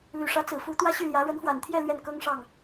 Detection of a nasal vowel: absent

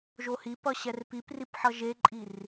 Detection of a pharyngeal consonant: present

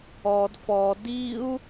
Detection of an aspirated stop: absent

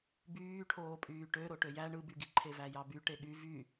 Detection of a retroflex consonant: present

